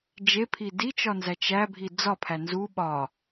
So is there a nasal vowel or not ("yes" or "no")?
no